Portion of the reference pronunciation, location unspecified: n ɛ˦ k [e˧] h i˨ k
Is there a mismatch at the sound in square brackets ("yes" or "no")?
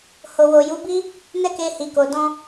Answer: no